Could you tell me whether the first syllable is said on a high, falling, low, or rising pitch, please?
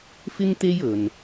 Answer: high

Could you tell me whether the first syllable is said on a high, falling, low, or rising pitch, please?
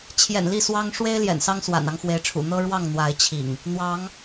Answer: low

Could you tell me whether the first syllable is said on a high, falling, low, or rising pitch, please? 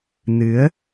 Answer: rising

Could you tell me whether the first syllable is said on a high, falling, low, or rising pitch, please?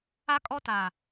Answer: high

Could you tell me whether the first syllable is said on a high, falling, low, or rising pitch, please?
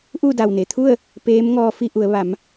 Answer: falling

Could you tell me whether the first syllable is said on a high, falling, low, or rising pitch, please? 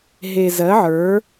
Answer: low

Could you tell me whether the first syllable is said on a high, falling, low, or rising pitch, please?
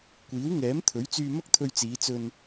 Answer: rising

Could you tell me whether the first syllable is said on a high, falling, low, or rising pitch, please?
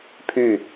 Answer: falling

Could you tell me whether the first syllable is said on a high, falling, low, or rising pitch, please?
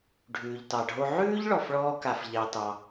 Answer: low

